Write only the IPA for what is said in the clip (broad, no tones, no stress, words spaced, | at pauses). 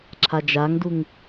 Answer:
ǁʰad͡ʒaŋduŋ